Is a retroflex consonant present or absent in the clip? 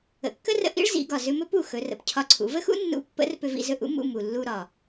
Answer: present